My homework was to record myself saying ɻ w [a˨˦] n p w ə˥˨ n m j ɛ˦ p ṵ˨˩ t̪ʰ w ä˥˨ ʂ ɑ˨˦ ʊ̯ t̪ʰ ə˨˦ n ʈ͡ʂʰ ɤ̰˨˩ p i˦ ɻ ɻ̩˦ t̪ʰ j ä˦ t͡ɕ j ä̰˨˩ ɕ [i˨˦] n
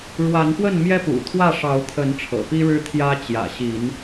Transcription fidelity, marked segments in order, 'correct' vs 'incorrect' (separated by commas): correct, correct